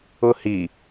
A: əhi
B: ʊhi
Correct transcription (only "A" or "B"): B